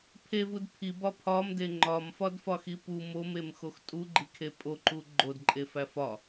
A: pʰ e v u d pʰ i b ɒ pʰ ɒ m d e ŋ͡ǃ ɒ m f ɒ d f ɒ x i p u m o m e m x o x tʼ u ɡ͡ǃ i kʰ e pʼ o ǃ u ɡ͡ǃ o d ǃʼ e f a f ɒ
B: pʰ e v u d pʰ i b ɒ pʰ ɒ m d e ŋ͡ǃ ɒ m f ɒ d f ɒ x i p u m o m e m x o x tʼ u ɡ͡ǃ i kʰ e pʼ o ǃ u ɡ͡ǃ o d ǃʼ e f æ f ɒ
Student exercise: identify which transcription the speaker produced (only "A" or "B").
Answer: B